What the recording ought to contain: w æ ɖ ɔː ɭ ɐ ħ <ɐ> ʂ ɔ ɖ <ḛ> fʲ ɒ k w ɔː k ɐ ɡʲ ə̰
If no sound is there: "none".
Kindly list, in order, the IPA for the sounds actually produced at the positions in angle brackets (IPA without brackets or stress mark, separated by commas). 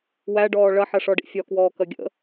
ɐ, ḭ